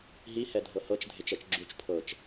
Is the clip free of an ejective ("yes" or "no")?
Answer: yes